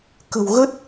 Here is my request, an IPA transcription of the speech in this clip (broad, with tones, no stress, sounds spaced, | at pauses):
k ə̤˨˩ w ɣ ə˦˥ t̚